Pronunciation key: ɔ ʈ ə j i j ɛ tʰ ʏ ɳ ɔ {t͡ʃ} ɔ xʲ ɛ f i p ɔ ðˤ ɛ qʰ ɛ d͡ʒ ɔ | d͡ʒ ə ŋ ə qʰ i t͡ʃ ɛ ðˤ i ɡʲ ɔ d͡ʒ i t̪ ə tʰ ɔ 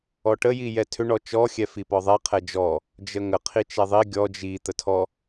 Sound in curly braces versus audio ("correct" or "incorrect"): correct